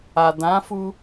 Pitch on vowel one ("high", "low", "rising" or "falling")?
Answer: low